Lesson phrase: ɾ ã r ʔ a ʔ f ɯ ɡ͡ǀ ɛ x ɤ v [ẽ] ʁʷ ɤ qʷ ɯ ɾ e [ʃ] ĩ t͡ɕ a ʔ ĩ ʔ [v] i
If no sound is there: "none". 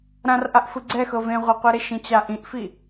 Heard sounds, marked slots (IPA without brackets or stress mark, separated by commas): ẽ, ʃ, f